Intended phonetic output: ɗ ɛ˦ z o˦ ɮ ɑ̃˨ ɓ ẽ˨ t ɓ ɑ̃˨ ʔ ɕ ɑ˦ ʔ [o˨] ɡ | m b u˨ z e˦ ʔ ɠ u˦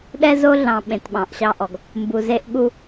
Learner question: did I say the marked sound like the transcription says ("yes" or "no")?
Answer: no